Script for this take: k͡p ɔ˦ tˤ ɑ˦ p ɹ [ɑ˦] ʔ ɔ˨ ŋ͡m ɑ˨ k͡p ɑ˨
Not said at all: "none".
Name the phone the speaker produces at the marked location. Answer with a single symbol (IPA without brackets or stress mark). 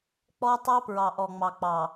ɑ˨